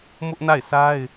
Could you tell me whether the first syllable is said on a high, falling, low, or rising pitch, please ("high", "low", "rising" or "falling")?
high